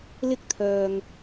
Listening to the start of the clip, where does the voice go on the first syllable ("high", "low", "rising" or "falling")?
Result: high